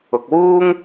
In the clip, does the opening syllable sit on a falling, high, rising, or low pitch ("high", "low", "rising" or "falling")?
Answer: low